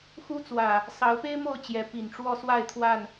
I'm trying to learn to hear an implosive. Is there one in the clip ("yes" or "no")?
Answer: no